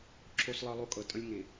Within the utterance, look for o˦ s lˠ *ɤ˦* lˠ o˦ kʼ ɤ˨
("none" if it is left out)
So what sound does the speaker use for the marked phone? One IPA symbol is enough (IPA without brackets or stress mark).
ɤ˦